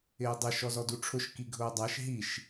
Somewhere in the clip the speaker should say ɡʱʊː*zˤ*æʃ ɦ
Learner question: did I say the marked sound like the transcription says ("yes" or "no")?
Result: no